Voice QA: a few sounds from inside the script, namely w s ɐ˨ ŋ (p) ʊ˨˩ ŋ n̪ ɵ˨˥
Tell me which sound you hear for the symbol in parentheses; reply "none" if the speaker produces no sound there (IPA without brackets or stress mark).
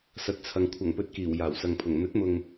pʰ